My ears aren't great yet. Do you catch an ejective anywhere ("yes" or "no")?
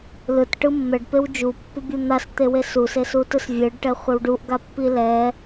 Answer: no